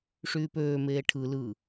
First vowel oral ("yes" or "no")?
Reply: yes